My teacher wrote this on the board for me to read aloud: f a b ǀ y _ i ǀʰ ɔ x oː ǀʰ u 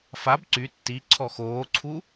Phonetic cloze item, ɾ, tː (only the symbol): tː